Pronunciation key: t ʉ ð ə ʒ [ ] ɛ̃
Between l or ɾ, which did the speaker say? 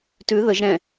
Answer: ɾ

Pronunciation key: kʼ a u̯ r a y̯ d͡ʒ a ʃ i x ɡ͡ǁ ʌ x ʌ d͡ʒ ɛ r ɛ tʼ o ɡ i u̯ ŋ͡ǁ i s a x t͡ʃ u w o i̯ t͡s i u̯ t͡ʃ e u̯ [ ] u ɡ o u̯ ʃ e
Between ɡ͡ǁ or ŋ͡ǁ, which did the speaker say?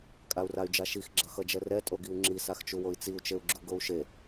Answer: ɡ͡ǁ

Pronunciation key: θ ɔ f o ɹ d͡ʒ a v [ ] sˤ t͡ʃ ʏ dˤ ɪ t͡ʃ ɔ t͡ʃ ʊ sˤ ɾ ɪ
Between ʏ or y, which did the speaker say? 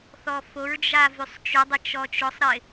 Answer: y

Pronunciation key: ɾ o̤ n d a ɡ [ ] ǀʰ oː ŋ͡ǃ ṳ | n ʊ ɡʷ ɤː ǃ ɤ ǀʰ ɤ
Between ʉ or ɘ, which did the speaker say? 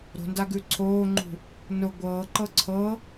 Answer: ʉ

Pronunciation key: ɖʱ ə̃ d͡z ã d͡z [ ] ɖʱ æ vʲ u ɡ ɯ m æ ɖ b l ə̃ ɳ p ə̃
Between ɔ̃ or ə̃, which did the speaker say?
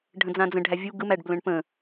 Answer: ə̃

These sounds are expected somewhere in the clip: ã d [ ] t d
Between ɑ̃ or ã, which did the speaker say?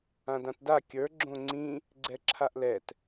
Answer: ã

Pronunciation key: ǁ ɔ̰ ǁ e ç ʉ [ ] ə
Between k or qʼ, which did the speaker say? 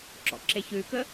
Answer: k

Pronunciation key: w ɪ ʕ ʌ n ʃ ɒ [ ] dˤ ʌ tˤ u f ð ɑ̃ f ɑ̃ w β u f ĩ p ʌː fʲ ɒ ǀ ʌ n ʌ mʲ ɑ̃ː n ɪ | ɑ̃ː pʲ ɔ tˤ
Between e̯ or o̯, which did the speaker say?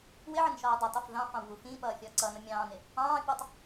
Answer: o̯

